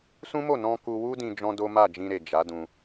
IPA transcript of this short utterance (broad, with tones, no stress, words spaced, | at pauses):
sũ˦mo˦˨ nɔ̃˧ ku˧wu˦dĩ˧ d͡ʒɔ̃˦ do˦ma˦˨d͡ʒĩ˧ɾe˨ d͡ʒa˨˦dũ˧